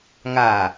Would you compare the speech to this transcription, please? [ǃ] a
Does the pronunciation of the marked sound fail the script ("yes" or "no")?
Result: yes